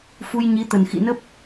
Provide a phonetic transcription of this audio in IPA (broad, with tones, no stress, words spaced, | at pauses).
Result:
fu˧jɲi˨˦t̪ə˨˩n xḭ˧˨nə˦˥p̚